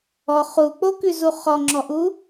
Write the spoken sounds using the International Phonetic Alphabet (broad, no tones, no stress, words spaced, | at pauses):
ɔ χuk͡pokʉzu χɔŋ͡ǁɔʔu